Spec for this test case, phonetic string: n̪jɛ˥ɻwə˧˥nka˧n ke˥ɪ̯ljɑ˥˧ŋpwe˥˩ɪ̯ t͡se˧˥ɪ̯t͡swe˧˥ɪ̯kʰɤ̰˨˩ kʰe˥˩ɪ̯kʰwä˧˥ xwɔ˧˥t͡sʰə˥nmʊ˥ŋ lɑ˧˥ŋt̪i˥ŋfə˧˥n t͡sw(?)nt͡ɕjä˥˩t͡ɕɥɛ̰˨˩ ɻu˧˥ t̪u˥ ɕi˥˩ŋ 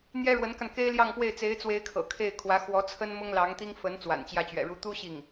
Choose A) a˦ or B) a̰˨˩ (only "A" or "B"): B